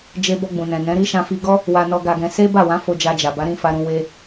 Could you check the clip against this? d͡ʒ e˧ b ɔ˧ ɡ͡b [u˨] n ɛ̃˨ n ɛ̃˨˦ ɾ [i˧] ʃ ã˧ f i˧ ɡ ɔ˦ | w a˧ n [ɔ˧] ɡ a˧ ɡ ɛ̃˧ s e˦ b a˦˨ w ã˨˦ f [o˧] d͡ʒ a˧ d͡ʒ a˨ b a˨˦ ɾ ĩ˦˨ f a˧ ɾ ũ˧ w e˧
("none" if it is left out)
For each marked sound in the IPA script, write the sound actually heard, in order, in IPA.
ũ˨, i˦, ɔ˧, o˧

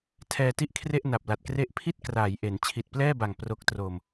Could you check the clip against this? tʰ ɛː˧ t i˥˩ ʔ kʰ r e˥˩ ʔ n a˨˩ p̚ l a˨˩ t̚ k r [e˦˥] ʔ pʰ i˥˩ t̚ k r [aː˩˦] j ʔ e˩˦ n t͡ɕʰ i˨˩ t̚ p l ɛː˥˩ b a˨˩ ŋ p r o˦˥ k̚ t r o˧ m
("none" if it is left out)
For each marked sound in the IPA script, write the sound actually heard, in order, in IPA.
e˥˩, aː˩˦

